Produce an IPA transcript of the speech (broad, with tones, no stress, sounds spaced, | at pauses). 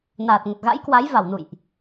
n aː˨˩ t̚ ŋ ə˨˩ t̚ ɣ a̰˧˥ j k w a˨˦ j v a˧˩ w n ṵ˧˨ j ʔ